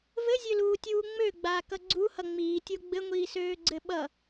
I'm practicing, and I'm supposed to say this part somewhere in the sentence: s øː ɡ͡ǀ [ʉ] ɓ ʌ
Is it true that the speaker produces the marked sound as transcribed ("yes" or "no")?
no